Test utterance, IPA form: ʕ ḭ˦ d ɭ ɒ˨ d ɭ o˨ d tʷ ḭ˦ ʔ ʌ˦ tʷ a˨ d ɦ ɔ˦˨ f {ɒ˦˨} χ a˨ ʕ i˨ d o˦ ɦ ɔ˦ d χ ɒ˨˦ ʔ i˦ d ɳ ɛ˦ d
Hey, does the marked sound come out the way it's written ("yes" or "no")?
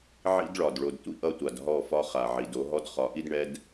no